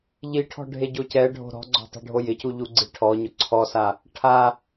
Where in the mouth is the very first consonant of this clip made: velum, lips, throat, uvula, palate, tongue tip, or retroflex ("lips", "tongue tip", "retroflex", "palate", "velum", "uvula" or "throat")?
palate